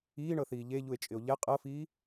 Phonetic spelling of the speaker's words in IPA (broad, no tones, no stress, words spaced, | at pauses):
iːɳɤθiː ʎeʎue̯t͡ʃʼɪo̯ ʎɛ qʼɤfiː